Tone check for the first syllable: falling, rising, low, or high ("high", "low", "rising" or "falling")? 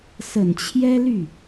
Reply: low